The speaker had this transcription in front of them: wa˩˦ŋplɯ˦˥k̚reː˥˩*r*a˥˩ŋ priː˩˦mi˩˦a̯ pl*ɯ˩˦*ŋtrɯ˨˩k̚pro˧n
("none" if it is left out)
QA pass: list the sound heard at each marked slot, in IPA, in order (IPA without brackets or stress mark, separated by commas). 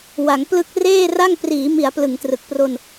r, ɯ˩˦